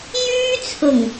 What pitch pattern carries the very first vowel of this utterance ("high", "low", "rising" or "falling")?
high